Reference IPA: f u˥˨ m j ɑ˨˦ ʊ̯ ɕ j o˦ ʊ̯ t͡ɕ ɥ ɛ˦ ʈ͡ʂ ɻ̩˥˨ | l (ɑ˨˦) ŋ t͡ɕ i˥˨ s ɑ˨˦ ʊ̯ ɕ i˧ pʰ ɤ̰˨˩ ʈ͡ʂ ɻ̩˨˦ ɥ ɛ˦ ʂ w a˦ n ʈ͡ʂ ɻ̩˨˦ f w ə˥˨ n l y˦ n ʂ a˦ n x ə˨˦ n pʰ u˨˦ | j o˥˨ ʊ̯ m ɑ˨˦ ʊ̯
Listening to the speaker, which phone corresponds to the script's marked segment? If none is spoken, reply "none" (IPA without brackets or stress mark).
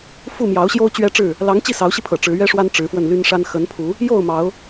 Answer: ɑ˨˦